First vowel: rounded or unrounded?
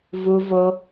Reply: rounded